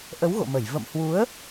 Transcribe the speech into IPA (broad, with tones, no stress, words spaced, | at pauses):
ʔə˨˦wɣo̰˧˨mə˧˩j və̰˧˨mhwu˨˦ə̯